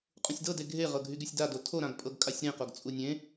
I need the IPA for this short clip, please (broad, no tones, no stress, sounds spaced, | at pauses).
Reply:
qʼ ũ sʲ d ɤ d e ɡʱ e ʁ ɤ ɡʱ y ɡ y sʲ d a d o tʰ o ɾ ã ɡ pʼ ɤ ɡ kʼ a sʲ ɾ ẽ q o ɡ t͡sʼ u nʲ ẽ